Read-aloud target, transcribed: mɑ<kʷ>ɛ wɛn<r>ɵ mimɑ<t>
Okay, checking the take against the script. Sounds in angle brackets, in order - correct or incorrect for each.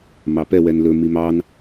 incorrect, incorrect, incorrect

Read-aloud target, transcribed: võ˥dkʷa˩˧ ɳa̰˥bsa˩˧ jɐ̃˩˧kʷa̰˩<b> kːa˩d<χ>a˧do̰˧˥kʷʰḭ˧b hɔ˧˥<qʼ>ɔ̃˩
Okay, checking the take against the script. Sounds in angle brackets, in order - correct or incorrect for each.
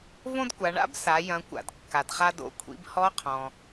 incorrect, correct, incorrect

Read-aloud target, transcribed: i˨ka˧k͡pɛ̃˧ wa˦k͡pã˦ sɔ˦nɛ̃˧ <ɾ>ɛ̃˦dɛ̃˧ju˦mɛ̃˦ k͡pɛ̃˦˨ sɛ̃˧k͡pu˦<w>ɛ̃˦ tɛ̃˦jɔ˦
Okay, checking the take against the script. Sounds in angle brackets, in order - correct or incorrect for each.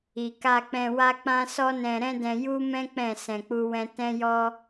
correct, correct

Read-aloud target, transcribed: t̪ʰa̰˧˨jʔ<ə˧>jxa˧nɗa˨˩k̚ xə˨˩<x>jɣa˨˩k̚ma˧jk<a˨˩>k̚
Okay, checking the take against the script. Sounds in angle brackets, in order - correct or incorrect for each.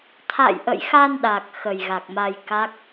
incorrect, incorrect, incorrect

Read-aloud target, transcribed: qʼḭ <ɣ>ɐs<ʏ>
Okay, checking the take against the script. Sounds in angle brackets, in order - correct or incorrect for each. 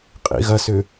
correct, correct

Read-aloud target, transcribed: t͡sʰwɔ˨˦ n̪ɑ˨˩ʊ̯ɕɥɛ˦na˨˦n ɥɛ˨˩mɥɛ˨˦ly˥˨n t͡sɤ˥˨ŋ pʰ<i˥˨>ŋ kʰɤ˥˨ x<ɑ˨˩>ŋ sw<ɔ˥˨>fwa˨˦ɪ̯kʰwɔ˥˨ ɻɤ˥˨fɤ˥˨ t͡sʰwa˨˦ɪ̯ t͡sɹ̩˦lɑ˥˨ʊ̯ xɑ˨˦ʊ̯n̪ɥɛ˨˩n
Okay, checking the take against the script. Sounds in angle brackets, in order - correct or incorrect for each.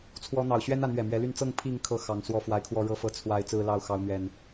correct, correct, incorrect

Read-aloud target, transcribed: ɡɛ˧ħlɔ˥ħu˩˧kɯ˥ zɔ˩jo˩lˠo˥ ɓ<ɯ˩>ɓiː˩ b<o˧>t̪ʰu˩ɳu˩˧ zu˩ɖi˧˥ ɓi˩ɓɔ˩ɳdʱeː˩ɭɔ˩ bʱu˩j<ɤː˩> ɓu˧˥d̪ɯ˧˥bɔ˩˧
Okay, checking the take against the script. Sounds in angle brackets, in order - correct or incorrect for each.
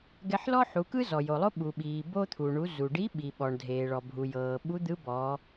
incorrect, correct, correct

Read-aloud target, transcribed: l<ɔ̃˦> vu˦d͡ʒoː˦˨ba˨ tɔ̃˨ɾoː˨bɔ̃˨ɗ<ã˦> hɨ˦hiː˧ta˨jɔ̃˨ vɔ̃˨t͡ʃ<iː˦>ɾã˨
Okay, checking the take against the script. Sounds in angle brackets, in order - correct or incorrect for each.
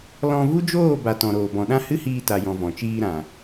incorrect, correct, incorrect

